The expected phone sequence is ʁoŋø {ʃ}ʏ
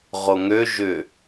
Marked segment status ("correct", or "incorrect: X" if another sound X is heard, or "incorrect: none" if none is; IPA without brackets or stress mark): incorrect: ʒ